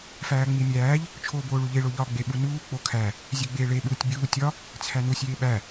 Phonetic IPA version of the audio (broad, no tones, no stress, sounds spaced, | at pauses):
f æː ŋ͡m i mʲ æː ʎ | t͡ʃʰ oː b oː ɭ u ʎ e ɭ o ʎ ɒː ɡ͡b e ɓ u n uː k͡p o kʰ æ | zʲ e ɡ͡b eː ɭ e ɓ uː tʲ bʲ uː tʲ ɒ | t͡sʰ æ n u sʲ eː ɓ æ